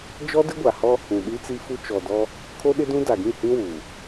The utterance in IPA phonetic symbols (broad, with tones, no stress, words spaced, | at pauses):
d͡ʒɔ˦dɪ˦ɡʷa˨hɔ˦ | ũ˨ɗi˦t͡si˦fu˦ t͡ʃɔ˨ dɔ˦ | kʰo˦ɗɪ˦dũ˦ da˨ɡĩ˦˨hĩ˦ wuː˨